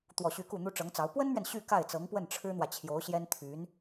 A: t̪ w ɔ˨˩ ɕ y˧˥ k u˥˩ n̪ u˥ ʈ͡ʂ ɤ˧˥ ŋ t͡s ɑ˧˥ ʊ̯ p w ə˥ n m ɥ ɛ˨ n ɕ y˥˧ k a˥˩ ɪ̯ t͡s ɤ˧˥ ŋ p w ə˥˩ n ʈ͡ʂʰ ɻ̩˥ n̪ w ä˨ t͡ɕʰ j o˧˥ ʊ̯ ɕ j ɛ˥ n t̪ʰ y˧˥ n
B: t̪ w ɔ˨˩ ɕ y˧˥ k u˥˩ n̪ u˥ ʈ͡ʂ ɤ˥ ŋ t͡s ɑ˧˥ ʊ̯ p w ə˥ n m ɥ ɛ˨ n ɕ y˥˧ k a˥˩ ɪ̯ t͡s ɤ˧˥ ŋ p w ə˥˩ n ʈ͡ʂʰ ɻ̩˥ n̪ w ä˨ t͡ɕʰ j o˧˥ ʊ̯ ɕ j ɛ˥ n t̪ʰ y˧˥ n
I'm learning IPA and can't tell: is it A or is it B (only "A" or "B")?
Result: A